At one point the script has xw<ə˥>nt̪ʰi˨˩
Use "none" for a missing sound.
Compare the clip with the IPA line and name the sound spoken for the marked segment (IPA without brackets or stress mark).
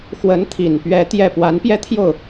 ə˧˥